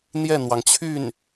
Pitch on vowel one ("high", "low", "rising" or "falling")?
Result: falling